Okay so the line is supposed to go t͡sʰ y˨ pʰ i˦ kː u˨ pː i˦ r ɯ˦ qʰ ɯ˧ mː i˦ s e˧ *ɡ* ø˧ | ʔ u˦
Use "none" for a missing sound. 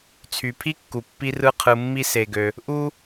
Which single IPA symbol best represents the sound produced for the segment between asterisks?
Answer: ɡ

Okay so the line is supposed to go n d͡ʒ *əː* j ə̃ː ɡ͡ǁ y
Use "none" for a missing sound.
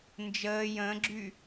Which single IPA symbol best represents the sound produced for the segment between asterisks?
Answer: əː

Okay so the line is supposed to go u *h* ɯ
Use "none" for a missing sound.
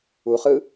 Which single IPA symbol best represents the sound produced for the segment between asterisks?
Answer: χ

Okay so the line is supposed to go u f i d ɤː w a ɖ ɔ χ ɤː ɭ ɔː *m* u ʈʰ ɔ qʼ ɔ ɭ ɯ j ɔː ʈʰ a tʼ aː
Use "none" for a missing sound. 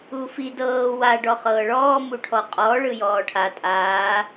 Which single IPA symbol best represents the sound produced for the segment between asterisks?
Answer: m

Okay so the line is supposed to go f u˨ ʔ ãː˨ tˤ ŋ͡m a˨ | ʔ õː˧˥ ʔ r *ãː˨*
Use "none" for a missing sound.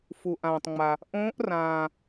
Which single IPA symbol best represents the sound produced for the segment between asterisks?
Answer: ãː˨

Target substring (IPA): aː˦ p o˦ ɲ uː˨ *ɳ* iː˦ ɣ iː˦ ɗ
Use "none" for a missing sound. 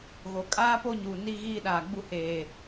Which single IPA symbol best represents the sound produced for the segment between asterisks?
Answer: n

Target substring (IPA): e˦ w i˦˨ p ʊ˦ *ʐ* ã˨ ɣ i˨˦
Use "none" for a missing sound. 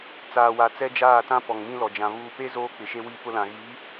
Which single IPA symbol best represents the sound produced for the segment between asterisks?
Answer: l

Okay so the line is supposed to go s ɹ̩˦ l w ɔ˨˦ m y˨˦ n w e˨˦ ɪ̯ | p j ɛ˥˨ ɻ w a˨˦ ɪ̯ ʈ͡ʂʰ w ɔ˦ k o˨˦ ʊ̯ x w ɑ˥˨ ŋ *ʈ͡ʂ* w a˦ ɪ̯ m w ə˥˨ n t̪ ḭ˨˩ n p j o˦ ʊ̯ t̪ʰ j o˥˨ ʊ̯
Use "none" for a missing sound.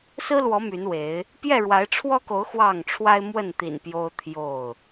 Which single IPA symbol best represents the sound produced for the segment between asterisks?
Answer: ʈ͡ʂʰ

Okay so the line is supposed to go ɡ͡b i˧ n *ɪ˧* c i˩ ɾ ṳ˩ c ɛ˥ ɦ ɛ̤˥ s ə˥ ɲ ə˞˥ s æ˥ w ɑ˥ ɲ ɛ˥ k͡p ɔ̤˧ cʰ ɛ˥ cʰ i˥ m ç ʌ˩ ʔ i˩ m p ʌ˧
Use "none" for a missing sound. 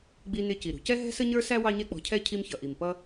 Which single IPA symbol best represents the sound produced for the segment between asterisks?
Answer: ɪ˧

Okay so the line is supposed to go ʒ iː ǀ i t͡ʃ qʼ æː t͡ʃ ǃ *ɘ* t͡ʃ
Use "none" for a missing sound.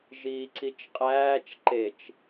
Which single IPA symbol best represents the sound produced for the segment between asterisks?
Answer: e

